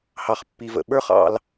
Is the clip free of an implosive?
no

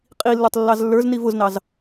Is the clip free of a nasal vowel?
yes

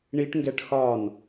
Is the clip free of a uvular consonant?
yes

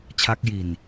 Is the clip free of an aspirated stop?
no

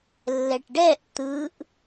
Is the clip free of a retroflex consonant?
no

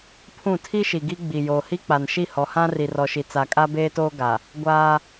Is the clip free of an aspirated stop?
no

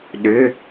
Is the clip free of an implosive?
no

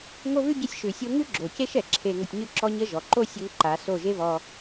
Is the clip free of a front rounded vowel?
yes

